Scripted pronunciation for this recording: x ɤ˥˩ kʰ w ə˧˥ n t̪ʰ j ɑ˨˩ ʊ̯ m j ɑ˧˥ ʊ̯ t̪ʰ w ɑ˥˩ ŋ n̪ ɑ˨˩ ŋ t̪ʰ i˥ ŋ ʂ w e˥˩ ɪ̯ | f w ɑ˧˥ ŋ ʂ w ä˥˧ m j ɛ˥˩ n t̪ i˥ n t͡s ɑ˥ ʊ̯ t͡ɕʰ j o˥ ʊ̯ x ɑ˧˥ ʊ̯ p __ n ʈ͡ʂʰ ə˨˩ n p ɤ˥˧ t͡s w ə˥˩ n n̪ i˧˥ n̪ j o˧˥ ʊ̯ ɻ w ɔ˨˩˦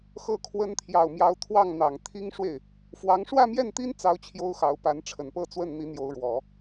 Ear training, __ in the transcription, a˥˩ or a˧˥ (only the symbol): a˧˥